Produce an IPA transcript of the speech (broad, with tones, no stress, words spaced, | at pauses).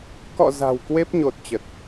kɔ̰˧˨ za̤˨˩wkwe˦˥p̚ɲo˨˩t̚ t͡ɕə˨˩t̚